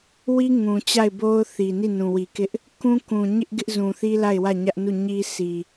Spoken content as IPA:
wi˦ ŋũ˨ t͡ɕa˦˨ɪ̯bo˦ʊ̯θi˨ ni˦˨nũ˨wi˨ kɪ˦ʔ | kũ˦kũ˨ ɲɪ˦ʔ ɡɪ˦ʔzũ˨θi˦ la˦˨ɪ̯wä˦˨ɲä˦ʔnu˦˨ ɲi˦ sʰi˨

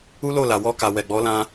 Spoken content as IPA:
u˦lo˦˨la˨ wɔ˧ka˨ wɛ˨ɡ͡bɔ˨˦lã˧

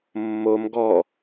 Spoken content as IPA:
mːom ɡɔ

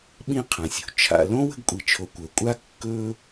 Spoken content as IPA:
ɓĩ˦ qʰã˩sʲṳ˩ t͡ʃʰa̰˨lõ˥ wə̤˦ɡkʷʼi˨t͡ʃʰo˨ kʷə˞˩kʷʼa˥ kːɵ˦

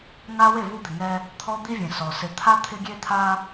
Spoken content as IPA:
ŋa˦ we˦˨vu˦d̪ɪ˨ŋɛ˦ | t̪ʰɔ˦d̪i˦vʲẽ˨ sɔ˨ sɪ˨t̪ʰa˦ t̪ʰɪ˦ɡʲe˦t̪ʰa˦

